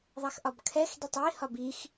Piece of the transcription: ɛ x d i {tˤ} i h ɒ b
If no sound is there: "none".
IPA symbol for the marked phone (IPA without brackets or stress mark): tˤ